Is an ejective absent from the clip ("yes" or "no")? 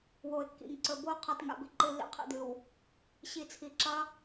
yes